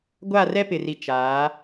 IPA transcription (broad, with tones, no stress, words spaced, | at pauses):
ɡʷa˦˨rɛ˦pɪ˨ri˨ t͡ʃaː˨˦